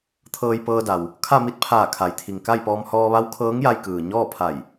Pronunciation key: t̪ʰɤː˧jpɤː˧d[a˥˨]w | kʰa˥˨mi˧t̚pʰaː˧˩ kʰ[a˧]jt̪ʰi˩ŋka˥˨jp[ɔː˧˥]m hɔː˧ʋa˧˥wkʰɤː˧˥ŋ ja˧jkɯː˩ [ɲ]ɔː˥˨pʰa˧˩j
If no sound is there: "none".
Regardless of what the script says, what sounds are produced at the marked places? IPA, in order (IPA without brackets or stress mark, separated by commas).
a˩, a˩˧, ɔː˧, ɲ